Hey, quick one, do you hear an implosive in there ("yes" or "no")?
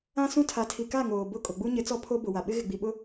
yes